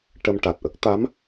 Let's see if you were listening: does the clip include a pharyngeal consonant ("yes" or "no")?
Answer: no